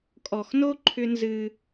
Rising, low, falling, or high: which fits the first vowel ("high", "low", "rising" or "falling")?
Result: low